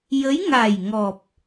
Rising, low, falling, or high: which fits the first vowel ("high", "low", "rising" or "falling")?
rising